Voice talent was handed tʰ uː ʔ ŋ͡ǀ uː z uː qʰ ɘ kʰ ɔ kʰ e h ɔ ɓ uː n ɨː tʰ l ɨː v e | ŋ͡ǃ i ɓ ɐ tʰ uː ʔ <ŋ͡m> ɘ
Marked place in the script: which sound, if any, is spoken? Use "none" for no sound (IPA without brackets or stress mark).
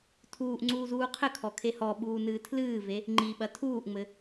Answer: ŋ͡m